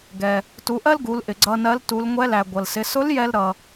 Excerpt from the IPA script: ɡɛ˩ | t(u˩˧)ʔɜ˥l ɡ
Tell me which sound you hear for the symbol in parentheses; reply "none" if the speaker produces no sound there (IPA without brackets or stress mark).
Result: u˩˧